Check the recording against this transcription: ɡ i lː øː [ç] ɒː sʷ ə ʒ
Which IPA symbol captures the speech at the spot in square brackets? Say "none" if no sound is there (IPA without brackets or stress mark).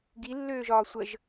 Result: ʒ